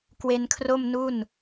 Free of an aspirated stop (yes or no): no